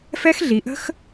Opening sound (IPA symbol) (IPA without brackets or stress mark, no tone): f